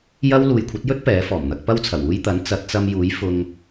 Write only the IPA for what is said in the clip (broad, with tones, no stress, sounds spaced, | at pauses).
j ɐ˥ w l uː˨ j kʷʰ ɐ˨˥ t̚ j ɵ˥ t̚ p ɛː˨˥ f ɔː˨˩ m n̪ ɐ˧ k̚ p ɐ˥ w t͡sʰ ɐ˨˩ w uː˧ j t̪ ɐ˨˥ n t͡s ɐ˨˥ t̚ t͡s ɐ˧ m j uː˨˥ j f ʊ˧ ŋ